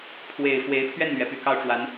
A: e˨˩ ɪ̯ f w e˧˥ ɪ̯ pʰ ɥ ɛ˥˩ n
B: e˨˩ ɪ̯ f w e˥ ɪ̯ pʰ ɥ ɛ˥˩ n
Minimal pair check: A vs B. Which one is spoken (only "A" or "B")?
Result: A